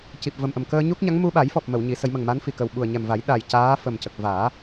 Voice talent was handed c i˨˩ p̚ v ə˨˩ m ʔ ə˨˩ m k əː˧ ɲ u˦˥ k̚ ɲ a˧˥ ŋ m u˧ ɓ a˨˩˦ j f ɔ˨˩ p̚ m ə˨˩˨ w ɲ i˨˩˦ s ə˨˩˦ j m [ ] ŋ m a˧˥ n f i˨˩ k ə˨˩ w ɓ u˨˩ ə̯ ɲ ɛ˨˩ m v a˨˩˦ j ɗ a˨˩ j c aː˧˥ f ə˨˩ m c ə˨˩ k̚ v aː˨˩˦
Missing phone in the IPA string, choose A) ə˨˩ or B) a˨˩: A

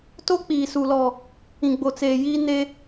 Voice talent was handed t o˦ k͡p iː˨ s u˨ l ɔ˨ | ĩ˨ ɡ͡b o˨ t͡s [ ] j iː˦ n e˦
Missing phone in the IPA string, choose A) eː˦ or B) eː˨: B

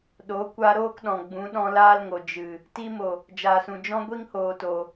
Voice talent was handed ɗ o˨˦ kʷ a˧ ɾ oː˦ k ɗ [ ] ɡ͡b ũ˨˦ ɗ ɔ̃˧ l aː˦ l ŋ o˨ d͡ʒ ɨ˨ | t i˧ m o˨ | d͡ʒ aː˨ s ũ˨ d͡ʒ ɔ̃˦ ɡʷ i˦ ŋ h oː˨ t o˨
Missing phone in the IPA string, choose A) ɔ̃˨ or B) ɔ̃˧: A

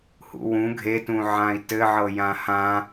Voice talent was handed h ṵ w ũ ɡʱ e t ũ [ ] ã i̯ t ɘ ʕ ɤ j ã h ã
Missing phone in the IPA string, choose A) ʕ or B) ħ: A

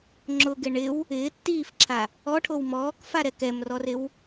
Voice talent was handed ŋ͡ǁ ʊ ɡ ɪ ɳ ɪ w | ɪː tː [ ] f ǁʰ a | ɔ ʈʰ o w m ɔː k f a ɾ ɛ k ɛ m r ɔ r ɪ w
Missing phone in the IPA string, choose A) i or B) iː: B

